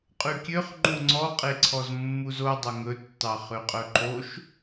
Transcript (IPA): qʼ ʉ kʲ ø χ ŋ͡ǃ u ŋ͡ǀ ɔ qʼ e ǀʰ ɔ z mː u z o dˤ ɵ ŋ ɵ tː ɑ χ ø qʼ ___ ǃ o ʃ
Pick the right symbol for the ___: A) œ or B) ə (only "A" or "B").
A